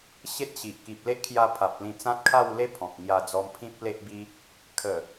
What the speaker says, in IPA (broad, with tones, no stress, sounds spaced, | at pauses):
ɕ e˦ t̚ ɕ i˨ ʔ k i˨ p̚ l e˦ ʔ kʰ j a˧ pʰ a˨ p̚ l ĩ˧ t͡s ã˦ t̚ kʰ a˥˧ w l e˦ pʰ ɔ̃˨ p̚ ŋ j a˧ d͡z ɔ˧ m pʰ ĩ˦ p̚ l e˦ ʔ b i˦ | kʰ ə˨˩